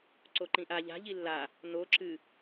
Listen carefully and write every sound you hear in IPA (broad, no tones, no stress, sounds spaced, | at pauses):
ǀ o ǃ ĩ ʔ a ʎ a̤ ʎ i lː a | n o ǁ ɨ